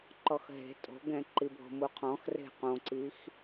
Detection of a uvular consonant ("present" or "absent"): present